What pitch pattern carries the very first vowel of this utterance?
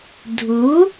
rising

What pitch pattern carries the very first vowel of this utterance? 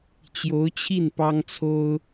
rising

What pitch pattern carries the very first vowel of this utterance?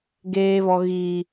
high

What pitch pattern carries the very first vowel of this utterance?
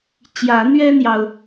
rising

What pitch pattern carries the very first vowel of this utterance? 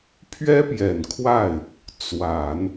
high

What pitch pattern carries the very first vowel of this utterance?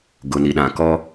low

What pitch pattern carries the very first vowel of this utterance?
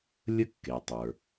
high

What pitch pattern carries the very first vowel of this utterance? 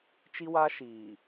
high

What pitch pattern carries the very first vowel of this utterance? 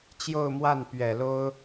falling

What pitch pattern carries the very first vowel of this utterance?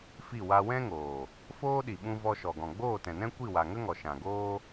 falling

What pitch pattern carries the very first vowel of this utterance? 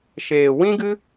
low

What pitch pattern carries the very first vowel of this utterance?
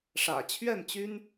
low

